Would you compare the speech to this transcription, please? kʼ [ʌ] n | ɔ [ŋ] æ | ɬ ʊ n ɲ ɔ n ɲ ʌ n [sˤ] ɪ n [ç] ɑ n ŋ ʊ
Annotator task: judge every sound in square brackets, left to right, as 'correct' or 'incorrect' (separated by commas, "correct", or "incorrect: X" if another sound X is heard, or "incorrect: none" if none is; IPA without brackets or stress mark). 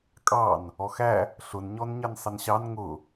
incorrect: ɑ, incorrect: x, correct, incorrect: ɕ